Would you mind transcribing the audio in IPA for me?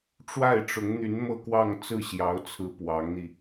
ʈ͡ʂ w a˥˩ ɪ̯ ʈ͡ʂ ʊ˧˥ ŋ n̪ y˧˥ n m ɤ˥˧ k w ɑ˥˧ ŋ t͡s ɹ̩˥˩ ɕ j ɑ˧˥ ʊ̯ t͡sʰ ɹ̩˧˥ p w ɑ˧˥ ŋ n̪ i˧

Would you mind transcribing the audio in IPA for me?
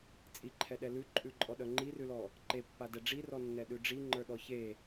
t͡sʼ i ǃʰ ɛ ɗ ɛ l ʉ ǃʼ ʉ ǃʼ ɔ ɗ œ ŋ͡ǃ i r ʉ l ɔ | ǃ e pː a d ɛ ɖ͡ʐ i r ɔ nː ɛ ɗ ʉ ɖ͡ʐ i ŋ͡ǃ ə˞ ɗ ɔ ç e

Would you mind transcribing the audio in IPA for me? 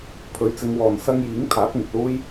pʰ ɵ˨˥ ɥ t͡s ɪ˨˧ ŋ w ɔː˨ n s ɐ˥ ŋ j iː˨˥ ŋ t̪ʰ aː˨˥ t̚ ŋ ɪ˨ k̚ l uː˥ j

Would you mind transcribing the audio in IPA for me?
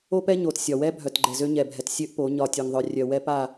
o˦ p ɛ˦ ɲ o˨ t sʲ ɒ˨ w ɛ˦ bʱ œ˨ t ɡ͡ǃ ɛ˨ z ø˦ ɲ ɛ˨ bʱ ɛ˨ t sʲ ø˦ ʔ p o˨˦ ɲ ɒ˨ tʲ o˨ ŋ ðˤ œ˨ rʲ œ˨ w ɛ˦ p a˦˨

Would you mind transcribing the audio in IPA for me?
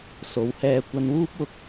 s o˨˧ w h ɛː˧ kʷ ɐ˧ n w uː˥ p̚ w ʊ˧ k̚

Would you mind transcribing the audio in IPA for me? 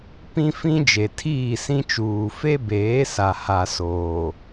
p ĩ˦ f ĩ˦ d͡ʒ e˨ tʰ iː˦˨ s ĩ˦ t͡ʃ uː˨ f e˦ b eː˨˦ s a˨ h a˨ s oː˨

